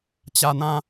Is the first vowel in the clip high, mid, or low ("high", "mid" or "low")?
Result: low